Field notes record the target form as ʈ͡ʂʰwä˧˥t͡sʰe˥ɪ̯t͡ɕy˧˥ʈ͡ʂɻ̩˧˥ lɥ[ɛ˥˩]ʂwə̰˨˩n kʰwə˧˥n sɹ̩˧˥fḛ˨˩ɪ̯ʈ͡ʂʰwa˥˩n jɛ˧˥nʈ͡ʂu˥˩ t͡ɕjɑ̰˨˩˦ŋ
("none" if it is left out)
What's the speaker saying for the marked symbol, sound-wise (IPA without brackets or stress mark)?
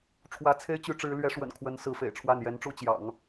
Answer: ɛ˧˥